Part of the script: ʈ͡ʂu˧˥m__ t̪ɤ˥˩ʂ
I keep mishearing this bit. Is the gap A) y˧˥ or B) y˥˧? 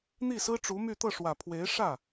B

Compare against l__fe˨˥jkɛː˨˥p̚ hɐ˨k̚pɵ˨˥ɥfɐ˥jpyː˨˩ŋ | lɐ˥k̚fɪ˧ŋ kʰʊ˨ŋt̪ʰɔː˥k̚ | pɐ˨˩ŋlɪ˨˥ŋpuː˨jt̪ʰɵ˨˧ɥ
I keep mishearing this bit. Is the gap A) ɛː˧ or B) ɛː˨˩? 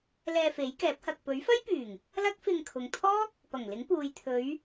A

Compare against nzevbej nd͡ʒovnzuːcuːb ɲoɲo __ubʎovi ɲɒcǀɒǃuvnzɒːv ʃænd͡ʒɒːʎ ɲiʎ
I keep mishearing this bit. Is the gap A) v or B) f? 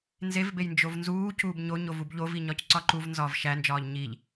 A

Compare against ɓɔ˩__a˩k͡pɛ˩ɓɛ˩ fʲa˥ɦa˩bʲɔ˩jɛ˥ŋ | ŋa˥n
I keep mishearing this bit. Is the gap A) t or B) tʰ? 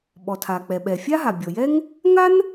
B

